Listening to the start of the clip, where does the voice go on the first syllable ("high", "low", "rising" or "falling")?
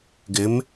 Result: rising